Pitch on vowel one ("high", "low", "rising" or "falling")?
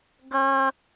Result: low